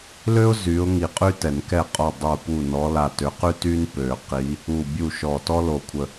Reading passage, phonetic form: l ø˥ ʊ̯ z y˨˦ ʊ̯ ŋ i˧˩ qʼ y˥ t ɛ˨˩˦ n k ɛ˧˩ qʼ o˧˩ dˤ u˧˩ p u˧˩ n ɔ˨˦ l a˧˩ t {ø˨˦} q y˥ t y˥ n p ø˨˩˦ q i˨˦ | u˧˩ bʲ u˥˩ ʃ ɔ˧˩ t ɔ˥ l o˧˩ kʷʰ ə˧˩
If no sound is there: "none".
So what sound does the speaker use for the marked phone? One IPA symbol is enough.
ø˨˦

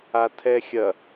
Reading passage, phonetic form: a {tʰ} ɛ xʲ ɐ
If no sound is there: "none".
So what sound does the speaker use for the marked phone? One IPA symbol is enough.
tʰ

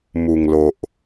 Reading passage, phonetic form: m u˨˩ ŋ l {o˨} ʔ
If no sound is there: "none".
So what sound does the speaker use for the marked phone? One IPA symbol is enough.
o˨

